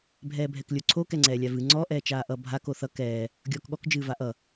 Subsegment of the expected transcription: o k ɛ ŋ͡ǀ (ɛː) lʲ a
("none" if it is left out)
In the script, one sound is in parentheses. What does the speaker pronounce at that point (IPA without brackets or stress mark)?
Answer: ɛː